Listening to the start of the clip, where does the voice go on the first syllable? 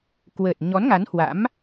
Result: low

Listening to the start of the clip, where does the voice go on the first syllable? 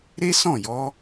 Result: high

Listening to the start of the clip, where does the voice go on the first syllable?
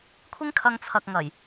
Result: high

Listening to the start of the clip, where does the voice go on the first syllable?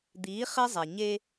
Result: rising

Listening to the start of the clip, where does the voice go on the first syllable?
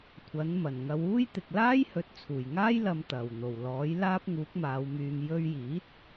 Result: rising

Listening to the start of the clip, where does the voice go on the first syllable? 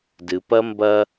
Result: low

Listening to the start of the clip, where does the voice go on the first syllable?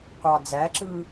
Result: low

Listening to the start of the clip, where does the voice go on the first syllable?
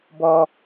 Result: high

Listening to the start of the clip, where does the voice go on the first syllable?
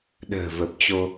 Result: low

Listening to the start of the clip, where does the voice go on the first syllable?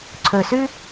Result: low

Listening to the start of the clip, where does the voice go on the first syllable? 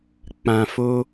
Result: low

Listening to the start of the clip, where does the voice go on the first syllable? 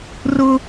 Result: high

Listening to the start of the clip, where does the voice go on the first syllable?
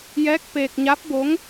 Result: rising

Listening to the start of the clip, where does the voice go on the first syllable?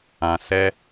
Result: low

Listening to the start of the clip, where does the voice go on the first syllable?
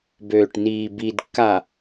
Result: low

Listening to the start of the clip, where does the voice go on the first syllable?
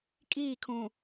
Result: falling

